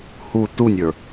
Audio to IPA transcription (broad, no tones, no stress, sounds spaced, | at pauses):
h u t u nʲ ə˞